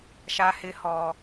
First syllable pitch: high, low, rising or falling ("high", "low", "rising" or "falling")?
high